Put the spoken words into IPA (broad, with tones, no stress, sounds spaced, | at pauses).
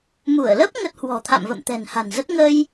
m u˧˩ ə̯ l ə˦˥ p̚ ŋ ə˦˥ t̚ h w ɔ̤˨˩ t̪ʰ a̰˧˨ m v ə̰˧˨ m t̪ ɛ̤˨˩ n h a̤˨˩ n z ə˦˥ t̚ ŋ ə˧ j